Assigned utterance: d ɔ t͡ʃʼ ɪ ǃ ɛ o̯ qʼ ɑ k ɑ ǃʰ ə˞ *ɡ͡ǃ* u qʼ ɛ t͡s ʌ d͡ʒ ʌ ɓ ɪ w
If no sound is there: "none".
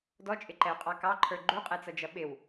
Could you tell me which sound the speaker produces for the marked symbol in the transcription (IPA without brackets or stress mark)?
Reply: ɡ͡ǃ